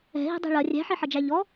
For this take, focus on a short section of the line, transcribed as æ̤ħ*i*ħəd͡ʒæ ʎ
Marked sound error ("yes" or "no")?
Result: no